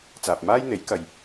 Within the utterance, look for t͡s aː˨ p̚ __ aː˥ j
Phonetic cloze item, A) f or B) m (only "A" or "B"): B